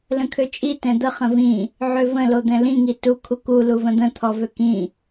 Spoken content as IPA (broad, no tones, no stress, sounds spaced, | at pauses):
l ə̃ kʰ ø t͡ʃʼ i t ɛ̃ d̪ ə χ ə̃ v ĩ | ʕ ø v ə̃ l o d̪ ɛ̃ l ĩ ŋ i t u kʰ u k u l u v ə̃ d̪ ə̃ t̪ʰ ɔ v ø k ĩ